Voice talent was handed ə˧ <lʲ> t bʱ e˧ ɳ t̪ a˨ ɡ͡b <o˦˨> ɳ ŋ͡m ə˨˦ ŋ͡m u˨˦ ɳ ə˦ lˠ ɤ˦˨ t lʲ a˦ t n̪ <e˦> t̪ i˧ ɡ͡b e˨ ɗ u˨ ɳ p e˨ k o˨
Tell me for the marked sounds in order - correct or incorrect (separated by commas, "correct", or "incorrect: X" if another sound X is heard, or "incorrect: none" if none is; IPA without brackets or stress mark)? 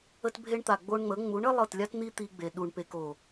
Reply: incorrect: none, incorrect: o˧, incorrect: i˦